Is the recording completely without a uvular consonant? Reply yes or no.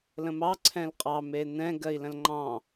no